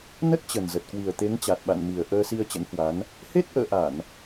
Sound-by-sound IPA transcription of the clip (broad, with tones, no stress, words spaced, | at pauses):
nə˦˥t̚t͡ɕə˨˩nzə˨˩t̚kwi˨˩ə̯ t̪e˨˦ŋt͡ɕa˨˩t̚ɓa̰˧˨n mi˨˩ə̯ ʔəː˧si˧ə̯ t͡ɕə̰˧˥nhwa˨˦n | he˦˥t̚ʔə̰ː˧˨ʔa˧˩˨n